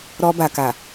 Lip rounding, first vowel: rounded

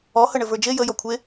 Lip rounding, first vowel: rounded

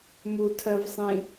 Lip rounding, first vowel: rounded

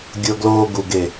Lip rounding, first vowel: unrounded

